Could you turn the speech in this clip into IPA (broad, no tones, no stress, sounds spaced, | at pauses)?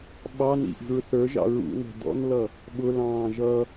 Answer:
ɓ ɑ n ḭ ʔ i̤ ɹ θ ə˞ ʒ ɑ̰ ɹ ṵ n ɛ̤ d ɔ̰ n l ʌ | ɓ ʊ l ɑ̃ː ʒ ʌ